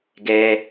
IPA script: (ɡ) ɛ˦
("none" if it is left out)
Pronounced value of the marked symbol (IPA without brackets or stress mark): ɡ